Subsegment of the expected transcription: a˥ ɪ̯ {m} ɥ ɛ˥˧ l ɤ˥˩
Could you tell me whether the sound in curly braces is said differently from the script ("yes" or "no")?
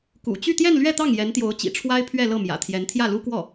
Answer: yes